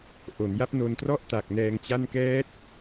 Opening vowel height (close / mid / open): mid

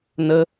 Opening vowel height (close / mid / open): mid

